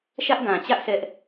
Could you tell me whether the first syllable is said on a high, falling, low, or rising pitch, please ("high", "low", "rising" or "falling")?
high